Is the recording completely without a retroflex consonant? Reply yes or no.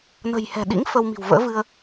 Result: yes